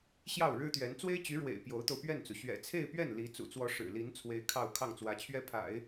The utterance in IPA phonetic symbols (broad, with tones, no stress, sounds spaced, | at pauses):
ɕ j ɑ˥˩ ʊ̯ ɻ ɻ̩˥ t̪ ɥ ɛ˧˥ n t͡s w e˥ ɪ̯ t͡ɕ y˧˥ ɻ w ḛ˨˩ ɪ̯ p j o˧˥ ʊ̯ t̪ o˧ ʊ̯ p ɥ ɛ˥˩ n t͡s u˩ ɕ ɥ ɛ̰˨˩ t͡sʰ e˥˧ ɪ̯ p ɥ ɛ˥˩ n l i˧˥ t͡s ṵ˨˩ t͡s w ɔ˧˥ ʂ ɻ̩˨˩ l i˧˥ n t͡sʰ w e˧˥ ɪ̯ kʰ ɑ˥˧ ʊ̯ kʰ ɑ˥˩ ŋ t͡s w ä˧˥ t͡ɕʰ ɥ ɛ˥ pʰ a̰˨˩˦ ɪ̯